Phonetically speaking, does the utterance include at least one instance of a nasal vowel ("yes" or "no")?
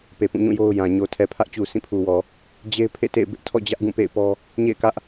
yes